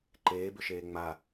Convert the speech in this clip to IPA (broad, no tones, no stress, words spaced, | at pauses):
ǃeːbʏʃeː ŋ͡ma